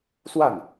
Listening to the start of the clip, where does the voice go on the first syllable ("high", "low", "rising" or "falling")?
falling